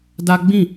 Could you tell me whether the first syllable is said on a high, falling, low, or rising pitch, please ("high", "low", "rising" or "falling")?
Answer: high